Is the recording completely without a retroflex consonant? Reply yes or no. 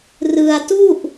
yes